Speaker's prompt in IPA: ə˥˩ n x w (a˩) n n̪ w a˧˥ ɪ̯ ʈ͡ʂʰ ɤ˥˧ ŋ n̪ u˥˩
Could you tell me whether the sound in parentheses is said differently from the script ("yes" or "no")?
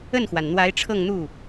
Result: no